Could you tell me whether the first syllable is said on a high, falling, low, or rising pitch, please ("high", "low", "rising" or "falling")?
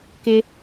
high